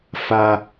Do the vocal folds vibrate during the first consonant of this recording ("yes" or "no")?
no